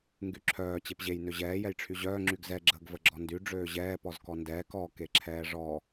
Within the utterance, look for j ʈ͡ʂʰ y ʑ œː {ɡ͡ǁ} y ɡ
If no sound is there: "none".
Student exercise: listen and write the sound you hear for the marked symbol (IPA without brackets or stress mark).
ŋ͡ǁ